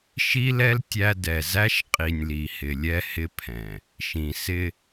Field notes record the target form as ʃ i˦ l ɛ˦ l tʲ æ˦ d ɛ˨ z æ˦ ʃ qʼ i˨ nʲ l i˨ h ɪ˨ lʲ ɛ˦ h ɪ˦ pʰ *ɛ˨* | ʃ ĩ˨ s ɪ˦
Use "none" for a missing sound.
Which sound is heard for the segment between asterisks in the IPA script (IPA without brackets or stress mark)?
ɛ̃˨